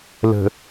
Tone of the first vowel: low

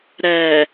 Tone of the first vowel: low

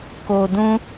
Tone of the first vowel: low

